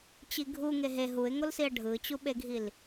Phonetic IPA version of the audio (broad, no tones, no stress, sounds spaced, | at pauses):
t͡ɕ i ɡʱ u ŋ e ɦ e ɦ u ɪ̯ ŋ o l s i ə̯ ɖʱ ɯ t͡ɕ u ɓ e ɡʱ i l